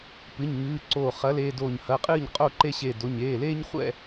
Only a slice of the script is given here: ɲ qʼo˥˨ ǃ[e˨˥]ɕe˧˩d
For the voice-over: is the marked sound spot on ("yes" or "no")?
no